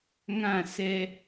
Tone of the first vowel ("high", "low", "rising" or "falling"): falling